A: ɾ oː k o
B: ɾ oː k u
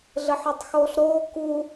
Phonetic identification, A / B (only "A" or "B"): B